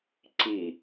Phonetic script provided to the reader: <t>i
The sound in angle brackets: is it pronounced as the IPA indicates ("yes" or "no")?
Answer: no